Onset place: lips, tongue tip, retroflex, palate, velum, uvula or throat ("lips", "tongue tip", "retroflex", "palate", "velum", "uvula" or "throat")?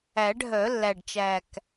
retroflex